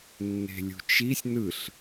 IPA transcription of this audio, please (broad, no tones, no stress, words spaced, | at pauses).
nːe̤lʲṳt͡ʃisʲ nɯɬ